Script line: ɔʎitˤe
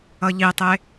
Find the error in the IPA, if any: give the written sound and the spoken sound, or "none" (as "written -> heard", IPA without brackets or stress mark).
ɔ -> ʌ